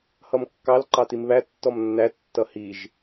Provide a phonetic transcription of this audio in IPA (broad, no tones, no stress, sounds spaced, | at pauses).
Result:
h ʌ m kː ɑ l ǃ ɑ t i m β æ tː ɔ m nː æ tː ʌ h i ʒ